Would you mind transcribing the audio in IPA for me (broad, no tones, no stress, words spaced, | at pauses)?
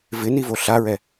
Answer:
vɪnivo ɬaɹɛ